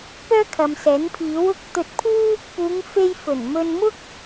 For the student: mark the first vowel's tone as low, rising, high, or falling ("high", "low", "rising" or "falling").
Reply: high